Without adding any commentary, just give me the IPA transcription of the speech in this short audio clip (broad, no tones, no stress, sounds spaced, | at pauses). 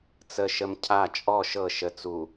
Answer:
t͡s ə ʃ ə m cʰ a t͡ʃʼ ɔ ʃ ɤ ʃ ə t͡s u